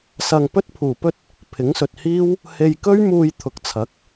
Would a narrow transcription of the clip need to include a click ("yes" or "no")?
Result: no